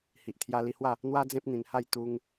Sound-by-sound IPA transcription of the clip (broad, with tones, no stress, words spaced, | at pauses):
hi˨ʔt̪ʰja˧li˧hwa˥˧ | n̪wa˦d͡zẽ˦p̚n̪ĩ˧nha˥˧j t̪u˦ŋ